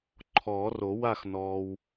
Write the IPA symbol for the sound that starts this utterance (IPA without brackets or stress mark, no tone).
ǃʰ